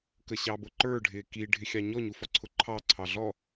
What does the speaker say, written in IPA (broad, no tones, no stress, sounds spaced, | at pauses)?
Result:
k ə ɕ ɑ b ʊ ǃ ə˞ ɖʱ ɪː k i ɖʱ ɪ xʲ ɑ ɲ ɔ ɲ u f ɔ ǀʰ ʊ ǃʰ ɑ ǀʰ ɑ ɮ ɔ